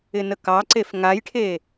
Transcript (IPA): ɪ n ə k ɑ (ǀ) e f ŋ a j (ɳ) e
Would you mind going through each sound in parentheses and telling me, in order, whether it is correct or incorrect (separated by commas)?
correct, incorrect